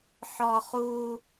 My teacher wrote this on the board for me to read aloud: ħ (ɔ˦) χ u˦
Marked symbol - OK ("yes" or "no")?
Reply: yes